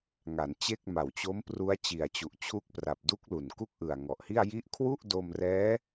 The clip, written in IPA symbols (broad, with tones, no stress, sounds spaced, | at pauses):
ŋ a˩˦ n t͡ɕ e˥˩ k̚ m a˨˩ w t͡ɕ o˦˥ m p r u˦˥ a̯ t͡ɕ i˨˩ a̯ t͡ɕ u˨˩ ʔ t͡ɕʰ u˦˥ k̚ p r a˨˩ p̚ d u˦˥ k̚ l u˨˩ n k u˥˩ k̚ ʔ ɯ˨˩ a̯ ŋ ɔ˨˩ ʔ h i˥˩ a̯ j i˦˥ ʔ kʰ w u˥˩ ʔ d o˧ m r ɛː˦˥